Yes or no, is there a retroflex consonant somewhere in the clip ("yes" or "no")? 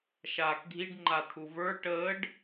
yes